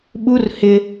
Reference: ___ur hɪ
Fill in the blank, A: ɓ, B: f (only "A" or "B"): A